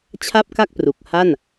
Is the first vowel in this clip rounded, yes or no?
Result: no